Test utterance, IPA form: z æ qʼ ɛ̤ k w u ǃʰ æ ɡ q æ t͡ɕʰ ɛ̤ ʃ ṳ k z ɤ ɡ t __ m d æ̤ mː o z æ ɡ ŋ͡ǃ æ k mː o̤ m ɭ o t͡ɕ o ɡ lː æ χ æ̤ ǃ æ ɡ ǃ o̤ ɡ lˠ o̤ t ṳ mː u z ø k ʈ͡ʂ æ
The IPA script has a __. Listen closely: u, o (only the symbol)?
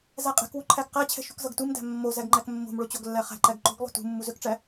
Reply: u